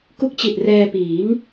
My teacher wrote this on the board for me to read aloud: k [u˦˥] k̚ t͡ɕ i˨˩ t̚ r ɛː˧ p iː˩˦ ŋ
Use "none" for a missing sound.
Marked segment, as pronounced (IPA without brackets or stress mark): u˦˥